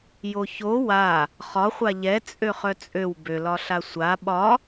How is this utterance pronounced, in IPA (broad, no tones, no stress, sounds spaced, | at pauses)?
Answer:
j o ç o w a | χ ɒ χʷ a ʎ ɛ t͡sʼ ø χ œ t͡sʼ ø w b ø l ɒ ɬ a sʷ a ɓ ɒ